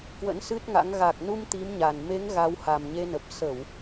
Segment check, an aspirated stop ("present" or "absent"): absent